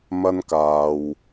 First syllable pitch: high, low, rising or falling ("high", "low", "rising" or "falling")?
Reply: high